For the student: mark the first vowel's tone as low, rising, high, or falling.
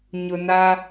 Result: low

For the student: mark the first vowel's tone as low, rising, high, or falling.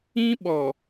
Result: high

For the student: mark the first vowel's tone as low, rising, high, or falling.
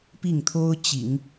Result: falling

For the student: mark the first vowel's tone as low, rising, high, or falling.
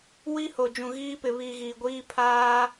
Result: high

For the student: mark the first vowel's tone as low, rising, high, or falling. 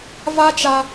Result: high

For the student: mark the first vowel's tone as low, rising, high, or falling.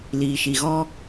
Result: low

